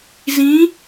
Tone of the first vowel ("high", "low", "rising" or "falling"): rising